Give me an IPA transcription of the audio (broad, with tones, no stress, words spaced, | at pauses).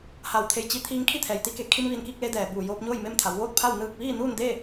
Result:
ha˧˩w t̪ʰe˧˩jt͡ɕi˧ t̪ʰiː˧ŋkʰi˥˨ t̪ʰɛː˩jt̪i˧ke˩˧ kʰi˧mʋi˧˩nki˥˨k̚le˧ dɛː˩buː˧˩joː˧p̚ɲoː˥˨j me˥˨mt̪ʰa˩˧w ʋoː˥˨t̚ pʰa˥˨w nɯː˥˨k̚ ʋiː˥˨nuː˥˨n de˥˨